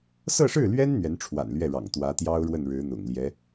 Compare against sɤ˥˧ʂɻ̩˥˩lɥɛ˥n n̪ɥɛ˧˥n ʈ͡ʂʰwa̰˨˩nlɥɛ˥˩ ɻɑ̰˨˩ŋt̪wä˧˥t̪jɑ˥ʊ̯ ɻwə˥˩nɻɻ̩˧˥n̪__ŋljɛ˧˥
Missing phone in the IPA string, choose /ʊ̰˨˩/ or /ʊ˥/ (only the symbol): ʊ̰˨˩